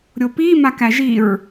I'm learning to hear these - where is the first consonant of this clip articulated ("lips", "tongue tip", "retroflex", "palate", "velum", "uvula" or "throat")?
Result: tongue tip